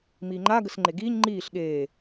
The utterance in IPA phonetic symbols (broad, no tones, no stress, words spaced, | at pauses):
miːŋ͡ǃa ɡəsŋ͡ǃeɡiːɲ ŋ͡ǃiːɬ ɠeː